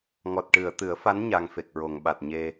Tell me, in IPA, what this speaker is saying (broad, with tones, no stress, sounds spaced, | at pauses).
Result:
ŋ ɔ˨˩ t̚ ʈ ɨ˨˩˨ ə̯ t̪ ɨ˨˩˦ ə̯ f a˧˥ n ɲ a˧ ŋ f e˨˩ k̚ ɹ o˨˩˨ ŋ ɓ a˨˩ t̚ ɲ e˧